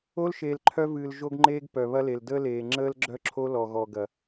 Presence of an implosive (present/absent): absent